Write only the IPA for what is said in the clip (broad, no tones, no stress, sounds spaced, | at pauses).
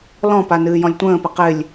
l ɔ̃ p a n ɨː j ɔ̃ lʲ tʷ ə̃ː p ɪ q ɪ lʲ